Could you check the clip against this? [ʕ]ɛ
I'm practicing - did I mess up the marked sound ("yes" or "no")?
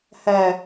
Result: yes